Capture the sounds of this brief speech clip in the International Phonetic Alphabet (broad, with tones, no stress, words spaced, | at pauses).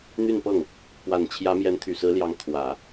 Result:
n̪y˥˧npɤ˥˩ŋ | pwa˨˩nt͡ɕʰjä˧˥ mjɛ˧˥nt̪ʰy˨˩sɹ̩˧˥ljɑ˧˥ŋ t̪ʰwä˨˩˦